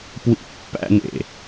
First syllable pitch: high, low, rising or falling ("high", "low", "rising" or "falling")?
high